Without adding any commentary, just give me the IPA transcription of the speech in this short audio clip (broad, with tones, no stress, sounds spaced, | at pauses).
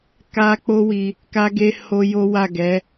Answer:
k a˦ k͡p o˦ w i˧ | k a˦ ɡ e˦ h o˦ j o˦ w a˦˨ ɡ ɛ˨˦